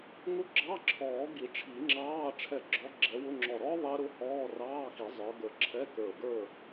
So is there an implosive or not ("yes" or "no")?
no